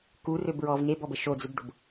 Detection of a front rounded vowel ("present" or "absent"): present